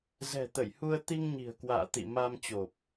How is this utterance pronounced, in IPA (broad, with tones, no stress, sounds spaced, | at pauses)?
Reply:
z ɛ̤˨˩ t̪ ə˧˩ j h u˧ ə̯ t̪ i˧ ŋ ɲ i̤˨˩ ə̯ k w a̰ː˧˨ t̪ ḭ˧˨ m a˧ m t͡ɕ o˨˩ p̚